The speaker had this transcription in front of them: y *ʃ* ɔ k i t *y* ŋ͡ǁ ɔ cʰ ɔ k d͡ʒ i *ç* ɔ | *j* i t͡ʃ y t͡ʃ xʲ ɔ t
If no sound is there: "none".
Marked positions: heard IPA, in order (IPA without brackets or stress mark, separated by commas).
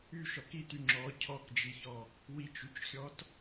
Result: ʃ, y, ç, w